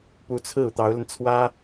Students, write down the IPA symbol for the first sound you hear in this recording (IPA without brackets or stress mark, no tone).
p